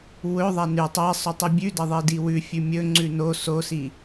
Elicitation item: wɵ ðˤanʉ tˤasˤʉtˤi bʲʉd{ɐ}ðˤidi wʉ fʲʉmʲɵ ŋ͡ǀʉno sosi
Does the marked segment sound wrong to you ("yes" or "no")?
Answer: no